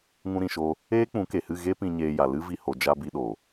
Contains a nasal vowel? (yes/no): yes